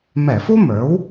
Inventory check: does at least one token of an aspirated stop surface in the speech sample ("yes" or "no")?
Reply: no